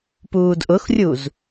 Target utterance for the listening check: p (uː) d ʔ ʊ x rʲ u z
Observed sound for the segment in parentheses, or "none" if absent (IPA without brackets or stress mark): uː